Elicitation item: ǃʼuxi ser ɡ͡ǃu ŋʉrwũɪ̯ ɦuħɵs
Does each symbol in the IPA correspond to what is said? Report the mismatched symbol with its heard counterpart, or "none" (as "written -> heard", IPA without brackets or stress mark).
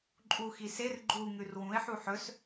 ɦ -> ħ